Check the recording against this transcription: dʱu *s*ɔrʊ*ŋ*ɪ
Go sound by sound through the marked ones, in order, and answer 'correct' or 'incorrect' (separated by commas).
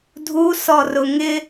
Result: correct, correct